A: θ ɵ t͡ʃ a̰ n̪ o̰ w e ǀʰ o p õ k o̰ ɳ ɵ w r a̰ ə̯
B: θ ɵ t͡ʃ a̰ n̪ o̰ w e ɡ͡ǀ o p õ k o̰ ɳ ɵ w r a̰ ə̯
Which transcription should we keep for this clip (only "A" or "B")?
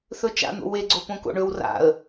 B